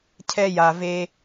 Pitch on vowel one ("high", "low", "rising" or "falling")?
high